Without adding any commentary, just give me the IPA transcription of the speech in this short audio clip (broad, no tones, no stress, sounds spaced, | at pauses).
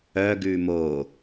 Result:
œ ɡ ʉ m o